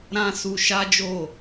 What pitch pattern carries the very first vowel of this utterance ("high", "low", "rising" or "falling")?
high